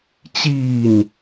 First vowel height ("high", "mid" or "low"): high